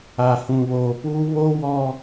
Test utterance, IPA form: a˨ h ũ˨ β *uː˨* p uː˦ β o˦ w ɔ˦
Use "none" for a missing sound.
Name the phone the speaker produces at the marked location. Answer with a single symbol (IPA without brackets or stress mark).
oː˨